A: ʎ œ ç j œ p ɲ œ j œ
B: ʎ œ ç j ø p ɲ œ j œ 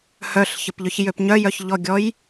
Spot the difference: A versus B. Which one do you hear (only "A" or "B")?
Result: B